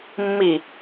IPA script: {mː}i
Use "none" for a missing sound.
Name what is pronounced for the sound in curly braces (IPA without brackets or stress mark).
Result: mː